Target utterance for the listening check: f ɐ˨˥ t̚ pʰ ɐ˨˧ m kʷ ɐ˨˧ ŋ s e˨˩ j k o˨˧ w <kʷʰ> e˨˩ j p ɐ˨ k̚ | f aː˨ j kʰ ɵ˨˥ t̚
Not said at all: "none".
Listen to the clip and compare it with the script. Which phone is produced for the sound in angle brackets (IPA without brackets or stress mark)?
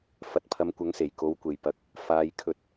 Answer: kʷ